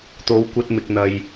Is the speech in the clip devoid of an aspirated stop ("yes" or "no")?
yes